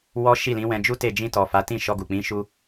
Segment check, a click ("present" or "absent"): absent